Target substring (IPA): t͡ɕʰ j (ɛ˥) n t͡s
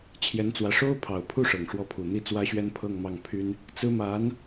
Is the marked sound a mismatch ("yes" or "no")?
yes